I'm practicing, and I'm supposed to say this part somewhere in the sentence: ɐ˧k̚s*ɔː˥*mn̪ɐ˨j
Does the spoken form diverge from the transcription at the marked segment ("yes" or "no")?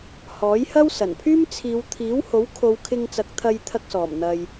yes